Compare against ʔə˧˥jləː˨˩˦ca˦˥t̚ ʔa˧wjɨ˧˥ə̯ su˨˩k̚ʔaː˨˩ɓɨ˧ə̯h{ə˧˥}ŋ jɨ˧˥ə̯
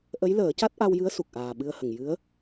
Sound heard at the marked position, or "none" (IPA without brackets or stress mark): ə˨˩